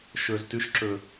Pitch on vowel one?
low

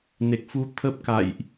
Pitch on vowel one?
low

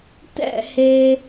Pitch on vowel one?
falling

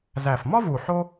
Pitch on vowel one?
low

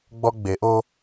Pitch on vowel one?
high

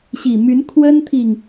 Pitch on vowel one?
low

